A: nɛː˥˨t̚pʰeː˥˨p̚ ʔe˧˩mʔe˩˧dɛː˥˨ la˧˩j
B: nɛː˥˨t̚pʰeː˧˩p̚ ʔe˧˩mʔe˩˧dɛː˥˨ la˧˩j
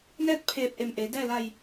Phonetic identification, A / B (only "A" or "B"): B